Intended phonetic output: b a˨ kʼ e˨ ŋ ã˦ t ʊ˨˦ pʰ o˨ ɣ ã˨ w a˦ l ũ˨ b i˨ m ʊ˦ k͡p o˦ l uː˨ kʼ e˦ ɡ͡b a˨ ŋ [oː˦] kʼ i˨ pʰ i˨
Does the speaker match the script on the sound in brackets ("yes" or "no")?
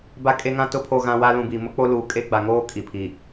yes